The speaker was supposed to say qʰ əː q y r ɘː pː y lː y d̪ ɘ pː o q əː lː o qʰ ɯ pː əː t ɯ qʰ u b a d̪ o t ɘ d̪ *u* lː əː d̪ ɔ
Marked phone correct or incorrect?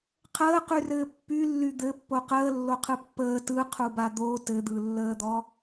incorrect